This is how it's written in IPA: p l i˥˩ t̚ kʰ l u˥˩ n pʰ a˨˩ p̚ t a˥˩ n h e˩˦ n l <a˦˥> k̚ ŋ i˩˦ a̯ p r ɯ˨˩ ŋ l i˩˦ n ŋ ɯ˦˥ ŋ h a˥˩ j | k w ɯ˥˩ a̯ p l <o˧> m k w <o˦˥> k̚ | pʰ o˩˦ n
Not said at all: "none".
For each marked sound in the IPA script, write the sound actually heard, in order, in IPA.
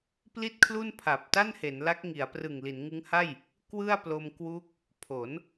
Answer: a˦˥, o˧, u˦˥

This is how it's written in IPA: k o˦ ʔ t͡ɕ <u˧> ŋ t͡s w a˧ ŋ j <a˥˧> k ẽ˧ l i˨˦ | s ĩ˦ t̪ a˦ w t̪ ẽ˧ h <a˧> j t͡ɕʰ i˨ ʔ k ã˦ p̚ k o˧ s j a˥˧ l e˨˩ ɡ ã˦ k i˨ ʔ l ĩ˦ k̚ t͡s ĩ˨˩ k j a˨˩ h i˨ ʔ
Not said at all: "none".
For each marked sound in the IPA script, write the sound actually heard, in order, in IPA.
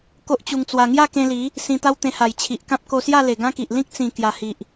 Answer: u˧, a˥˧, a˨˩

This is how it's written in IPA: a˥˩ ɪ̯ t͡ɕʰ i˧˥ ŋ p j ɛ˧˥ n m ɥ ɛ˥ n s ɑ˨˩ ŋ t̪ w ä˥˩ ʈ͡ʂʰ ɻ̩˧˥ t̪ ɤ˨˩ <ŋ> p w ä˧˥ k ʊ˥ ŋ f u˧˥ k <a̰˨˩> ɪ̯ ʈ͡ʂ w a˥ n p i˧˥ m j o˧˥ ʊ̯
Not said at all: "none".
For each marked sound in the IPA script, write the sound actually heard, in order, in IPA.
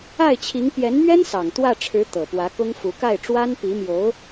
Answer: none, a˥˩

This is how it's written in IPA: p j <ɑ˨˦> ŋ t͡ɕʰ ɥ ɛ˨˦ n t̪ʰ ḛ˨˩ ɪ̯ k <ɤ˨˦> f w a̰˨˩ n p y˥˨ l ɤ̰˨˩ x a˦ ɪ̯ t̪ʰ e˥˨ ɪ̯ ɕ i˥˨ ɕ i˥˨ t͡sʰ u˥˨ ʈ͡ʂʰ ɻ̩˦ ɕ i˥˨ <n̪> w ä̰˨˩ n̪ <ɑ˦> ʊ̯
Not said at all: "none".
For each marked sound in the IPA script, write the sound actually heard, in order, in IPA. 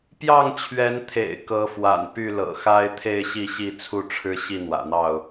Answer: ɑ˥˨, ɤ˨˦, n̪, ɑ˥˨

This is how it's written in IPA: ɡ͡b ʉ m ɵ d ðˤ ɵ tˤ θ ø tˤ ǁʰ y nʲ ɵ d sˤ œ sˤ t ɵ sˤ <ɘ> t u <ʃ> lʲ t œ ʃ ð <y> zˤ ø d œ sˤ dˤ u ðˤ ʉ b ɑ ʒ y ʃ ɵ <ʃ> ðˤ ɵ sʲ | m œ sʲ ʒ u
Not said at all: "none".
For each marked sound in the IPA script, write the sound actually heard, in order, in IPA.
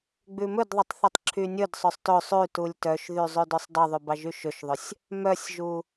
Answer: ʉ, none, y, ʃ

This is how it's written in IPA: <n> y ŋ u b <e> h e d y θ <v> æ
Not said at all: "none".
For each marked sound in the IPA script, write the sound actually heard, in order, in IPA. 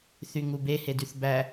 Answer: θ, e, b

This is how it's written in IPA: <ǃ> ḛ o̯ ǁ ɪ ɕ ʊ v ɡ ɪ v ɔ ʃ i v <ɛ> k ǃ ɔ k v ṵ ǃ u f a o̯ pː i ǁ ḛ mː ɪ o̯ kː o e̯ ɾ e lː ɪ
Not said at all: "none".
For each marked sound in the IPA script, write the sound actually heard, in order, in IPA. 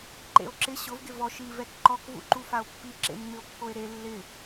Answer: ǃ, ɛ

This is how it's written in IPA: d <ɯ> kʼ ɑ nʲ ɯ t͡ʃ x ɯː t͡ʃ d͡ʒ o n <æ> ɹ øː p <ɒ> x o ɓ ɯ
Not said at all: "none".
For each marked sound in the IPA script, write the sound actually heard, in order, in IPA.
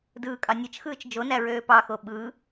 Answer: ɯː, æ, ɑ

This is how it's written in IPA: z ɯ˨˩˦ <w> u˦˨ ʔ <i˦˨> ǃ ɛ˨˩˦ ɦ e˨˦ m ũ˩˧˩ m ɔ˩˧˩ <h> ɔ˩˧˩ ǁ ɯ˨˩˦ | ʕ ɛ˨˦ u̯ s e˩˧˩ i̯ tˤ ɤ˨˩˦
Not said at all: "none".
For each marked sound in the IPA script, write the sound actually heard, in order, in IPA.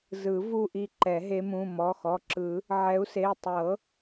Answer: v, i˦˨, x

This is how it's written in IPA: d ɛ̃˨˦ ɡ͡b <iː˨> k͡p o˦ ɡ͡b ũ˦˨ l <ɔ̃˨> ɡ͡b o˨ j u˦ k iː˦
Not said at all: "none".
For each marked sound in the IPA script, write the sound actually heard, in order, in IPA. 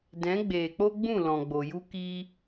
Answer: eː˨, ɔ̃˨

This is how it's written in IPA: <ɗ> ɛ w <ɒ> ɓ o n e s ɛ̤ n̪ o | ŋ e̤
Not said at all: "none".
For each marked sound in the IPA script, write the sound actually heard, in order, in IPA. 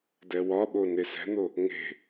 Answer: d, ɒ

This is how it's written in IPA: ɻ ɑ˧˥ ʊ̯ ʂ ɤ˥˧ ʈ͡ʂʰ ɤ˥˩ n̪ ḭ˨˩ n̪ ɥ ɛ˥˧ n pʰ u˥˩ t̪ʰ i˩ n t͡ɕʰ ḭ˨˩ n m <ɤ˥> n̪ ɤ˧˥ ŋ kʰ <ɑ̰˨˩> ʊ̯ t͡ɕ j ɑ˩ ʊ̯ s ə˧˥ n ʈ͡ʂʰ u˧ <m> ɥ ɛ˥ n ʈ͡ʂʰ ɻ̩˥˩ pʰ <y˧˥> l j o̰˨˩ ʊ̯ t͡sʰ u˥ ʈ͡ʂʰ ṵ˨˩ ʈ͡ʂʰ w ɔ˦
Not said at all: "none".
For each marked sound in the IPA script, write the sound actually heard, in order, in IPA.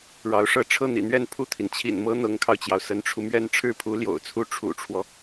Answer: ɤ˥, ɑ˧, m, u˧˥

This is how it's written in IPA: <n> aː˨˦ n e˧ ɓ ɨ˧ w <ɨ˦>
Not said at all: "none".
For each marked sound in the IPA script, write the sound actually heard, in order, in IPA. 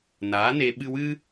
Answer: n, ɨ˦

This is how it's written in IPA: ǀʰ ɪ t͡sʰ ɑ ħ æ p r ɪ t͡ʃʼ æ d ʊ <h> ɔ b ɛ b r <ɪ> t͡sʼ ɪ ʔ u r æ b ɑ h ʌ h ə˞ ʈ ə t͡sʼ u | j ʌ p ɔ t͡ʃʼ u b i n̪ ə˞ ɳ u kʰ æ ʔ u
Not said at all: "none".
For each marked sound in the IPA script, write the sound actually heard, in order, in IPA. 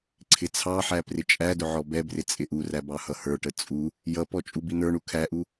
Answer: ʕ, ɪ

